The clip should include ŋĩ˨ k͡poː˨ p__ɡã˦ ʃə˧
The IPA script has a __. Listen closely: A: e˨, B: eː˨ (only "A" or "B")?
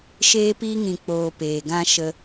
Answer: B